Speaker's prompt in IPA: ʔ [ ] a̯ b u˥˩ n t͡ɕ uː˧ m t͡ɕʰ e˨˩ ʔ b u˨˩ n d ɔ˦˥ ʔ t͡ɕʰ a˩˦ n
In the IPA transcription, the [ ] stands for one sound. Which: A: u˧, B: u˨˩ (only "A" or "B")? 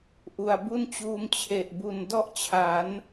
B